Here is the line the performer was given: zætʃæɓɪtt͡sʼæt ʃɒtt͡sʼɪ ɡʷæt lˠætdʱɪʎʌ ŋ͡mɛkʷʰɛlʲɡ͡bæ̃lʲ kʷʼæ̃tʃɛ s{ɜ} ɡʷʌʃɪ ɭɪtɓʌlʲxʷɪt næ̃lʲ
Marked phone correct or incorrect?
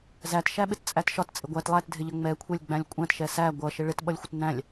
incorrect